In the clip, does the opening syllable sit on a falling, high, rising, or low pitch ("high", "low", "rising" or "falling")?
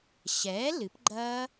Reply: rising